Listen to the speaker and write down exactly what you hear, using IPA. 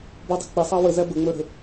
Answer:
b ɔ dˤ ə̤ k͡p ɪ sˤ ɑ w ə z æ b ə ŋ͡m ə˞ ɾ ə̤

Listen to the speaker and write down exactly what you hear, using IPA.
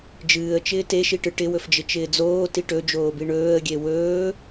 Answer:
d͡ʒ ɨː ə̯ t͡ʃ ɪː t e ʃ i ʈ ɨ ʈ ɪ w ɵ f d͡ʒ ɪ t͡ʃ ɪː d͡z oː t i ʈ ɵ d͡ʒ oː b i ɳ ɵː ə̯ ɡʲ e w ɵː

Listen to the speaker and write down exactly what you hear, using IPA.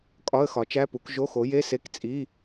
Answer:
kʼ ɒ˧˥˧ ə̯ x ɒ˩˥ t͡ʃ æ˧˥˧ p u˩˥ k ʒ o˧˥˧ x o˩˥ j e˧˥˧ s e˧˥˧ k t͡sʼ i˧˥˧

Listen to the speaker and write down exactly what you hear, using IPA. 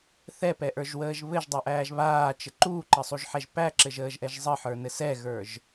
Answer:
θ ɛ p ɛ ʔ ə˞ ʒ w əː ʒ β ɘ ʒ dˤ ɛ ʔ æː ʒ β aː t͡ʃ ɘ ǃ uː ǃ ə sˤ u ʒ ħ ɛ ʒ p æ ǁ ɘ ʒ əː ʒ ʔ ɛ ʒ zˤ ə ħ ə˞ n ɘ s ɛ ɣ ə˞ ʒ

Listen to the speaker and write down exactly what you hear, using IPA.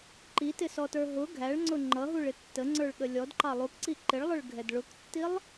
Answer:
ǃ i t ɪ s ɔ t ə˞ ɦ ʊ ɡʱ æ ɭ ŋ͡ǀ ʊ ŋ͡ǃ ʌ ɦ u ɭ ɪ tː ə ŋ͡ǀ ə˞ ɭ ɠ ə lʲ ɔ d ǃ ɑ lˠ u k ǀ i ǃ ɪ ɭ lˠ ʊ ɭ ɡʱ ɛ d ɭ ʊ k tː i lˠ

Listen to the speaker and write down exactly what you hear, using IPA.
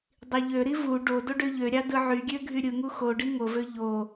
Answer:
dˤ i ʎ ø ɾ i v u ɖ o d o ɖ ø ʎ ø ɾʲ ɑ d ɯ ʕ y ɡʲ ø ɡʱ y ɾʲ ɯ ŋ u x o ɖ i ŋ o v ø ʎ o

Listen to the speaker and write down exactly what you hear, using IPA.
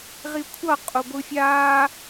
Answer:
ʁ i kʷʰ ʌ qʼ o ɡʷ ɯ fʲ aː

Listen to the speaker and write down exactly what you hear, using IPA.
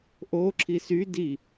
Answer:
ʔ o ǁʰ i s y d i

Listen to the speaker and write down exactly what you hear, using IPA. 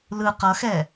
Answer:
l ɯ q ʌ x ɛ

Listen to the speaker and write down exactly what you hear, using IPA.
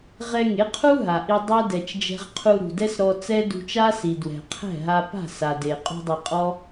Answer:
ʁ ɛ˧ ŋ e˨˦ qʰ u˦ ɦ a˨ ʔ i˦ dˤ ɛ˦ d ɛ˨ t͡ʃ d͡ʒ ɛ̤˧ ʁ qʰ u˧ ɾ ṳ˨ d ɛ˦ s ɾ ɔ˧ t͡s ɛ˦ d ṳ˧ t͡ʃ a˦ s i˨ d w ɛ̤˨ qʰ ɛ̤˦˨ ɦ a˧ p a̤˦˨ s a˨ d e˨ qʼ ṳ˧ dˤ i˨ qʼ ɔ˦

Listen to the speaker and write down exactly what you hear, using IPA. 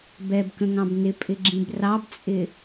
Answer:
b ɛ b k ə̃ ŋ ɑ̃ b n ɪ pʼ ɪ ɡ͡ǁ ĩ b r ɑ b t͡sʼ ɪ

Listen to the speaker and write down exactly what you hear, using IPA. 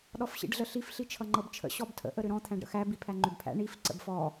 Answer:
ɗ ɔ f ɕ ḭ ɖ ɮ ə ɬ i f ɬ i t͡ʃʰ ʌ ŋ͡ǃ ɤ b t͡ʃʰ ə̰ ɕ ɔ b tʰ ə̰ ʔ ə ɾ ʏ ɾ ɔ̃ t̪ʰ æ̃ ɖ ɾ ə̰ x æ b i pʰ æ ŋ͡ǃ ʏ b pʰ æ̰ ɳ i f ǀ ə̰ b f ɔ

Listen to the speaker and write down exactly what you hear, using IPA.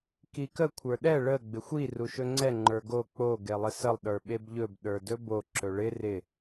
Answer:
k i k ə kʷʰ ə˞ ɗ ɛ ɭ ə ɡ͡b ɪ xʷ i r u ʃ ɵ ŋ͡ǀ ɛ ŋ͡ǃ ə˞ ɡ o k͡p o ɡ e lˠ ɪ s ə lˠ ɗ ə˞ ɓ e b ʎ ɵ b ɗ ə˞ d ɵ b o ǁ ɵ ɭ ɪ r ɪ

